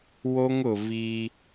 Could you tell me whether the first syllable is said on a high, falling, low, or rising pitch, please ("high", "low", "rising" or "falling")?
high